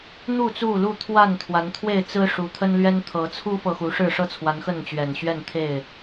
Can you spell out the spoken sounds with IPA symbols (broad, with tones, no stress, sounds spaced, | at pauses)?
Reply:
n̪ u˥˨ t͡s u˥˨ l u˥˨ t̪ʰ w a˥˨ n t̪ʰ w a˨˦ n t̪ʰ w e˥˨ ɪ̯ t͡s ɹ̩˦ ʂ u˨˦ t̪ʰ ə˦ n l ɥ ɛ˦ n t̪ʰ ɤ˨˦ t͡sʰ u˦ f ɤ˨ x u˨˦ ʂ ɻ̩˥˨ ʂ ɤ˥˨ t͡sʰ w a˨˦ n x ə˥˨ n t͡ɕ ɥ ɛ˨˩ n ɕ ɥ ɛ˥˨ n t̪ʰ e˥˨ ɪ̯